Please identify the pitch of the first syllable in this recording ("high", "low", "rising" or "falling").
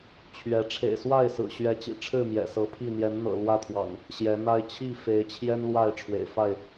rising